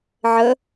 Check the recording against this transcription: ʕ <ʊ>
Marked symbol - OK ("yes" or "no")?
no